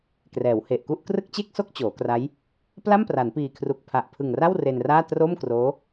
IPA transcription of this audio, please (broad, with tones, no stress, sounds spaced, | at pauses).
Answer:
k r ɛː˩˦ w h e˨˩ ʔ k u˥˩ ʔ k r ɯ˥˩ k̚ t͡ɕ e˥˩ k̚ s o˥˩ k̚ t͡ɕ oː˩˦ k r a˦˥ j | p l a˥˩ m p r a˩˦ n p iː˨˩ kʰ r u˨˩ k̚ pʰ a˨˩ ʔ pʰ ɯ˨˩ ŋ r a˥˩ w r e˧ n r aː˥˩ t r o˥˩ m k r oː˦˥